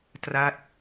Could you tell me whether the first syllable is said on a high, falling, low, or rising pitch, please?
falling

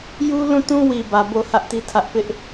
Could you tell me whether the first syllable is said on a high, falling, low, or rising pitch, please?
high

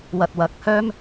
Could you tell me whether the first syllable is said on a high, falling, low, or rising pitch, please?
low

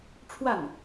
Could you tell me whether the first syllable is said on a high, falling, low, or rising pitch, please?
falling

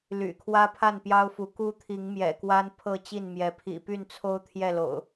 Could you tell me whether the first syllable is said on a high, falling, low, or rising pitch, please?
low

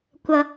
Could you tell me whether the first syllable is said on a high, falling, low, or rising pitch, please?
high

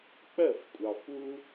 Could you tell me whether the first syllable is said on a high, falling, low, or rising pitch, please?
falling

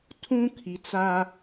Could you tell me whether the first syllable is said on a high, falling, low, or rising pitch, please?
high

